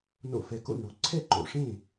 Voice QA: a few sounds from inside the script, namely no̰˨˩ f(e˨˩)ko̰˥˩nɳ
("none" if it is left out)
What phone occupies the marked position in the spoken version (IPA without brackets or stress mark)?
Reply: ɛ˨˩